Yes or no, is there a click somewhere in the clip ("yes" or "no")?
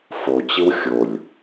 no